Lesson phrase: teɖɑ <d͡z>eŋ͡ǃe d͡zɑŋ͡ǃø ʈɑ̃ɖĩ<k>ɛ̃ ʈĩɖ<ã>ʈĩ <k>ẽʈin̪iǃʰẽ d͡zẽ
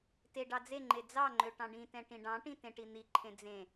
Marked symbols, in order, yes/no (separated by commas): yes, no, no, no